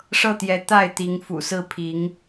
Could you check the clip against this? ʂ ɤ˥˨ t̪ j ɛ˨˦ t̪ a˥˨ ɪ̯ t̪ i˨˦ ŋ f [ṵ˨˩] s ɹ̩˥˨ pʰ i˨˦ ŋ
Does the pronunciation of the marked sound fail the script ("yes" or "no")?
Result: no